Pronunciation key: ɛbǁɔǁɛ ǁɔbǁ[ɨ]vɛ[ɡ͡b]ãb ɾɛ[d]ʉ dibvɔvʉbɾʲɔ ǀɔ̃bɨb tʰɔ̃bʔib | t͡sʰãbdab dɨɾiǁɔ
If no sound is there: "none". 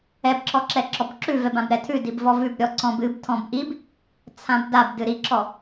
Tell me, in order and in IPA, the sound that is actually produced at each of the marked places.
ʉ, b, tʰ

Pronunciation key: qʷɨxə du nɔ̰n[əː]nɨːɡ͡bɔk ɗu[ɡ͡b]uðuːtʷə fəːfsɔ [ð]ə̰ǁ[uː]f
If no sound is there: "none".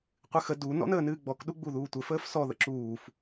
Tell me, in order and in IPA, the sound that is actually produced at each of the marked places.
əː, ɡ͡b, ð, uː

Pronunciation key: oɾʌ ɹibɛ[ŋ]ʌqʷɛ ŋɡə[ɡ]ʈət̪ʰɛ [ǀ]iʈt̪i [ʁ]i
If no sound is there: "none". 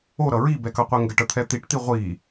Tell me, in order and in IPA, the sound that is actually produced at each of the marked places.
k, none, t̪, ʁʷ

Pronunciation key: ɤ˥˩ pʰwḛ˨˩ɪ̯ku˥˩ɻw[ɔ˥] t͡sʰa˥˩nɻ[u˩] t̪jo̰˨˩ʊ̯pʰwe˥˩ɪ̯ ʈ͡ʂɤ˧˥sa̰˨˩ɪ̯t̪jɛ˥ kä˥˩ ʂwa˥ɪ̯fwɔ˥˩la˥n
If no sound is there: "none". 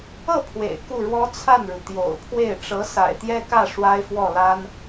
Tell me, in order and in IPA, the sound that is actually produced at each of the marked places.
ɔ˥, u˩

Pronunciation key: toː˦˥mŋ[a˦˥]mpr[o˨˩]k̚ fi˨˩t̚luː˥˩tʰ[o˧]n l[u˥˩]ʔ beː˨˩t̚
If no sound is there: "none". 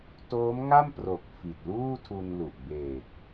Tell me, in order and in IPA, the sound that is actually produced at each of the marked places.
a˥˩, o˨˩, u˧, u˨˩

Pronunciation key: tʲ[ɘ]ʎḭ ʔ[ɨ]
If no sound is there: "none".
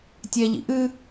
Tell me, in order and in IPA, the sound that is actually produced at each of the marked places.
ɛ, ɨ

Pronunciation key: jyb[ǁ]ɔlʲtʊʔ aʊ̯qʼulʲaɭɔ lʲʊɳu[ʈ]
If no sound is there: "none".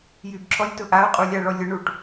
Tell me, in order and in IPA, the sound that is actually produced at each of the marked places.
ǁ, ʈ

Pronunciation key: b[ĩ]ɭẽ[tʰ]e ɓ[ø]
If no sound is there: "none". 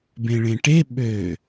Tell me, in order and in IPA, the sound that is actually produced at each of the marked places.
ẽ, ʈ, ø

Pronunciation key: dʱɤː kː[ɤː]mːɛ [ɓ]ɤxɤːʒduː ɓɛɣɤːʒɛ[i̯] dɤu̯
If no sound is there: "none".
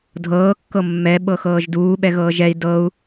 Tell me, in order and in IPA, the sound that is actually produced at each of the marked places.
ɤ, ɓ, i̯

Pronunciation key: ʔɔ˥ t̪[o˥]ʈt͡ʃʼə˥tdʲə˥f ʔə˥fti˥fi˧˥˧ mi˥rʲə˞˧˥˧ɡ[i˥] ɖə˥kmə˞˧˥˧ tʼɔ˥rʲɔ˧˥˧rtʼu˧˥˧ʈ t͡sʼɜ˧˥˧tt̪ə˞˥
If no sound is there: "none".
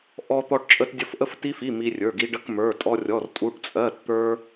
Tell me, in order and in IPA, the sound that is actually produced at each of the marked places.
ɔ˥, i˥

